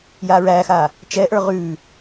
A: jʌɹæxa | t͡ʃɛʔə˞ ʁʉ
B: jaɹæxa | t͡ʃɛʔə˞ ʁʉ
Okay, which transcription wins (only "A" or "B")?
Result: B